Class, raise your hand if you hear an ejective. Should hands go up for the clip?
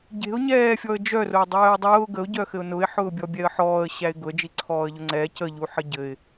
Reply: no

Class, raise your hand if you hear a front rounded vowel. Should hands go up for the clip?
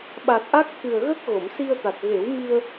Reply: no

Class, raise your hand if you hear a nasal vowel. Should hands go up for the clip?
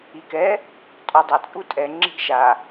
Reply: no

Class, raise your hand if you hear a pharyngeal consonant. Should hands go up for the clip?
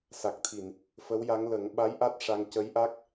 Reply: no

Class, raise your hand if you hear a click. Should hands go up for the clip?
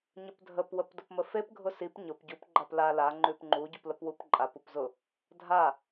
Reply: yes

